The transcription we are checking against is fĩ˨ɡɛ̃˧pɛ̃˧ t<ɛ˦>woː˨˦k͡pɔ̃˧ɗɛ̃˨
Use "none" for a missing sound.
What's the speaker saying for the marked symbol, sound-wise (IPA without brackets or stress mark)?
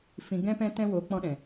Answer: ɛ̃˦